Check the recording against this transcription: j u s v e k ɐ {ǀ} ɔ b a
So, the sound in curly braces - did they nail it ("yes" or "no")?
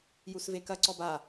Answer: yes